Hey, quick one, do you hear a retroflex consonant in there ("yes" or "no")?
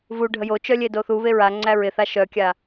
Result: yes